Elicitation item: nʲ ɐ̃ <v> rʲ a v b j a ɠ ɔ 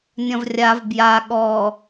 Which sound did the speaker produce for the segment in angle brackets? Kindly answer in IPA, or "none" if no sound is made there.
v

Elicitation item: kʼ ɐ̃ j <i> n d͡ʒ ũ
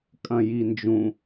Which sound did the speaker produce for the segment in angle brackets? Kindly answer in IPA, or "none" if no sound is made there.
i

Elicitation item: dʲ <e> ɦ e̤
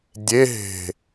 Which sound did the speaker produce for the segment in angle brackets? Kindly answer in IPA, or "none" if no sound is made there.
e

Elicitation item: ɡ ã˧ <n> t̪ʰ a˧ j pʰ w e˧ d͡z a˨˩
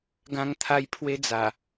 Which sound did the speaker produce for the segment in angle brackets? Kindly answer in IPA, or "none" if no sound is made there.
ŋ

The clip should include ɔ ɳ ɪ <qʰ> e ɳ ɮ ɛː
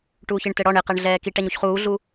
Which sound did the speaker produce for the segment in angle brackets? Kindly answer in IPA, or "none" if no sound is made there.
q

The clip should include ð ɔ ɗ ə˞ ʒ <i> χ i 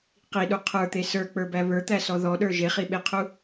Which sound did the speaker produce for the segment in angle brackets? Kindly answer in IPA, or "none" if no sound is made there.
e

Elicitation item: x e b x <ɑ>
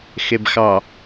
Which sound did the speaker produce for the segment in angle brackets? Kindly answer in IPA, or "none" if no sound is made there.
ɑ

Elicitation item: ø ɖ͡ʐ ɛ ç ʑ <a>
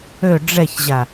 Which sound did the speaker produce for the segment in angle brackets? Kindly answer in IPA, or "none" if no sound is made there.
a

